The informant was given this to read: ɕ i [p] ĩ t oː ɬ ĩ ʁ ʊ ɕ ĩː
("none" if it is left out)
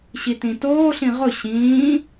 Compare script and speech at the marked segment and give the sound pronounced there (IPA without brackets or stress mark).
t